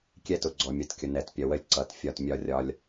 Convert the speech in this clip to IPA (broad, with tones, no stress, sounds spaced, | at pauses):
kʲ ɛ˦ t ʊ˨ ɡ͡ǀ ɔ˨ mʲ ʌ˨ t kʲ ʊ˨ n ɛ˨ t pʲ ʌ˨ w ə˦ lʲ ǀ ʌ˨ t fʲ ɒ˦˨ t mʲ ɒ˦ rʲ ɒ˦ lʲ